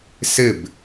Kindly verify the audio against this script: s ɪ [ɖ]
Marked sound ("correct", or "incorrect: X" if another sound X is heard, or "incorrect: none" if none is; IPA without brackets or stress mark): incorrect: b